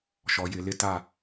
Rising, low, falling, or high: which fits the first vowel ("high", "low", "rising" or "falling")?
low